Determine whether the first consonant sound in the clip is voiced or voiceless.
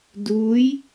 voiced